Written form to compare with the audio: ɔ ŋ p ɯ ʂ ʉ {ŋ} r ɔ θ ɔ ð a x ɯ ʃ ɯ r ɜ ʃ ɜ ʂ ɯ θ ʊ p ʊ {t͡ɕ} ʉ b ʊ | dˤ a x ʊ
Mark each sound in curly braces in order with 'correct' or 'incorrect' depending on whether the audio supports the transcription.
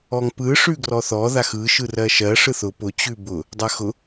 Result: incorrect, correct

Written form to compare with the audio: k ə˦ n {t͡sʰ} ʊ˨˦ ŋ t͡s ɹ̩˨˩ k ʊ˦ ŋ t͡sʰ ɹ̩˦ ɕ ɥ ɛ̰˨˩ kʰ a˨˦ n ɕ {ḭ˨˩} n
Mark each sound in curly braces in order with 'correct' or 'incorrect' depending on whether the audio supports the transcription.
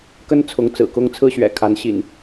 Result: correct, correct

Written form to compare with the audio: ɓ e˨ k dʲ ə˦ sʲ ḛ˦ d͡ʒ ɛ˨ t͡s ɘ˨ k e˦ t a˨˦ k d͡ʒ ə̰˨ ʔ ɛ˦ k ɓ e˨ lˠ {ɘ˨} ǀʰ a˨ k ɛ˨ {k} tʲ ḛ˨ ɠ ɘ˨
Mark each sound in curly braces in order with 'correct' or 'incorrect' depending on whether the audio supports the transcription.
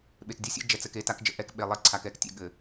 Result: incorrect, correct

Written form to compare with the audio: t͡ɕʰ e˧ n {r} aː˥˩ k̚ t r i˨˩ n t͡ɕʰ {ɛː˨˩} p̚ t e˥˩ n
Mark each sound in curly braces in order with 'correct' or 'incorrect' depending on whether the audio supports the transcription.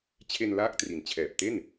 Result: incorrect, correct

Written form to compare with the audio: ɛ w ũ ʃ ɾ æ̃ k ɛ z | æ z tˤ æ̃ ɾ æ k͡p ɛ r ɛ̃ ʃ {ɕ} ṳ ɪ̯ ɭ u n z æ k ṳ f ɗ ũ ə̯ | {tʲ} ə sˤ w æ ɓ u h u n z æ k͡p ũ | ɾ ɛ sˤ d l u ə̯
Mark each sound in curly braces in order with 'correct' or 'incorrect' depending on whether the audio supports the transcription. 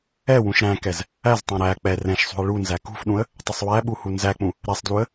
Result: incorrect, incorrect

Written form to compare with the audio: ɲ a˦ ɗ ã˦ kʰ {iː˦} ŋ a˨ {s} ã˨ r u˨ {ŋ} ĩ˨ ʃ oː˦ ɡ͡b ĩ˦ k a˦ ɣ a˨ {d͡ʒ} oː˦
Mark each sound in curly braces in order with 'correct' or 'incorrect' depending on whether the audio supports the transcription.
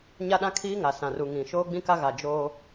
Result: correct, correct, correct, correct

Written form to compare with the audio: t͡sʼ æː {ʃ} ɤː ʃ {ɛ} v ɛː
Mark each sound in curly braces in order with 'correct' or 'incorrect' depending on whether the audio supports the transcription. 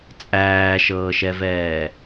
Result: correct, correct

